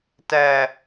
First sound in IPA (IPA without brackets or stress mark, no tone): t